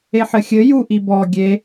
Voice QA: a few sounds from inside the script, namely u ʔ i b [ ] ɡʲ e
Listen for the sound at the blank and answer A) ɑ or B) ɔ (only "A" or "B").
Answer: B